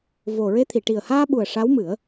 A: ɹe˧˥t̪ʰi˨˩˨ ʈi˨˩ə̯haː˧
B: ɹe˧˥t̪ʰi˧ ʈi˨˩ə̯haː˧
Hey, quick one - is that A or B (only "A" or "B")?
A